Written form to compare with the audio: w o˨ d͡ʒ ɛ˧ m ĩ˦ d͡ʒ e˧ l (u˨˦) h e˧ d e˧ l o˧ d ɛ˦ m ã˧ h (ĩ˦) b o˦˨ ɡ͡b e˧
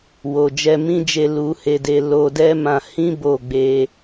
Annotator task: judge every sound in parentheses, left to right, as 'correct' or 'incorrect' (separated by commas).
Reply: incorrect, correct